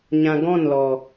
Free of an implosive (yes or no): yes